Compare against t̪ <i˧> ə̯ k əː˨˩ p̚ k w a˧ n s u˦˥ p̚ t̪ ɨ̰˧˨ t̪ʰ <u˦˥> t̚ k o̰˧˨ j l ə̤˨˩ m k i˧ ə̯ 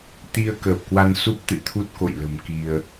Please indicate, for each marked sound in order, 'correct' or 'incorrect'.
correct, correct

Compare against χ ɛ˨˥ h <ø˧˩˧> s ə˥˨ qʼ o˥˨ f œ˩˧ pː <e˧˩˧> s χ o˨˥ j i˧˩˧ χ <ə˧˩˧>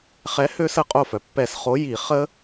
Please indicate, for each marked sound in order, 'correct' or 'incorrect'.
incorrect: ø˦˥, incorrect: ɛ˧˩˧, incorrect: ə˦˥

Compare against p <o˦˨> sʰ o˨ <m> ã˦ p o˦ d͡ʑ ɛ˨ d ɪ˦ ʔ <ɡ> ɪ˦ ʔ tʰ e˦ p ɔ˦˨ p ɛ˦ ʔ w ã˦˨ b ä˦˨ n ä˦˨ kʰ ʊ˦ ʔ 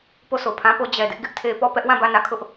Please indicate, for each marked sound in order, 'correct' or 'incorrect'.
correct, incorrect: pʰ, correct

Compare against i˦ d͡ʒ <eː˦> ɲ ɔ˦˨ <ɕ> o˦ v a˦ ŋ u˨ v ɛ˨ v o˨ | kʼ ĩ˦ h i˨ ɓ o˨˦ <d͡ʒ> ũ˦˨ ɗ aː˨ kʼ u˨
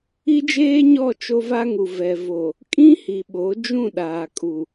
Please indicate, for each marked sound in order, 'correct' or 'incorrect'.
correct, incorrect: t͡ʃ, correct

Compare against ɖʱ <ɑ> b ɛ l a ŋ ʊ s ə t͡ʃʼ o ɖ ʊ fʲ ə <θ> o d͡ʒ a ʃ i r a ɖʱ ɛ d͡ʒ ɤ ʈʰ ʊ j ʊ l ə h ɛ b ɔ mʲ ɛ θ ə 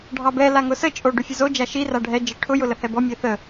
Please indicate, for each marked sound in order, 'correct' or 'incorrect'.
correct, incorrect: z

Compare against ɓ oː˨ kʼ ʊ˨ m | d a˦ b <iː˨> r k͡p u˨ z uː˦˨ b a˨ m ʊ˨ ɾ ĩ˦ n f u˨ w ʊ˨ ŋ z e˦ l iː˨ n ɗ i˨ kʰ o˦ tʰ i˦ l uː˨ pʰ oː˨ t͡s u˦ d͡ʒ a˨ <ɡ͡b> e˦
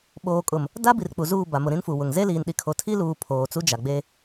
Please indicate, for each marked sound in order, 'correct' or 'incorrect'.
incorrect: i˨, correct

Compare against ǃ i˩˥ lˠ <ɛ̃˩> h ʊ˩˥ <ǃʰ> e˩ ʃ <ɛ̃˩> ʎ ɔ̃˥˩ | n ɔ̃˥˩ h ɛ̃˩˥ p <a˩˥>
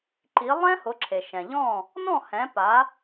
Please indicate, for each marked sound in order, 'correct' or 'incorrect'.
incorrect: ɛ̃˥, incorrect: ǁʰ, correct, correct

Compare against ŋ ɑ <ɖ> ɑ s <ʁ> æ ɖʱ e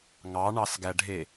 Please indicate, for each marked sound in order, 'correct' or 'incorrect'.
incorrect: ɳ, incorrect: ɡ

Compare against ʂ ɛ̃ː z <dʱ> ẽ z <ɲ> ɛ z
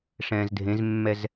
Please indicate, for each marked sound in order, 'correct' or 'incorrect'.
correct, incorrect: mː

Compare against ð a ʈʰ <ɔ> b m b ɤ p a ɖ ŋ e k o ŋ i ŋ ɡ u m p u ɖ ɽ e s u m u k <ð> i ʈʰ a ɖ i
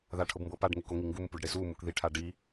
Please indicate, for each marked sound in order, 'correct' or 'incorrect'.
incorrect: ɤ, correct

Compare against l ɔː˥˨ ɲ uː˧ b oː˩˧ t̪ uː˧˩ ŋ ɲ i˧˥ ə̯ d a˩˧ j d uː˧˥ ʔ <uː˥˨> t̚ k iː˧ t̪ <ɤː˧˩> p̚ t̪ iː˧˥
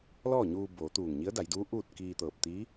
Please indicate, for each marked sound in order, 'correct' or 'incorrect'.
correct, correct

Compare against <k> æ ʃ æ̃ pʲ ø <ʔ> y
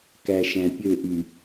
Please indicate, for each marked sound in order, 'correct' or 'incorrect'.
correct, correct

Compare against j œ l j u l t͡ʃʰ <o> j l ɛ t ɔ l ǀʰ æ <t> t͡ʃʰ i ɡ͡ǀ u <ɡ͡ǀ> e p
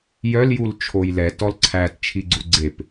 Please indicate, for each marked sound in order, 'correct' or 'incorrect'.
correct, correct, correct

